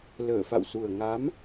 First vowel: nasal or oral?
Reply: oral